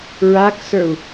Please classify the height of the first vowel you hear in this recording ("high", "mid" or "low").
low